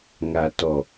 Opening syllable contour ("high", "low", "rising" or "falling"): low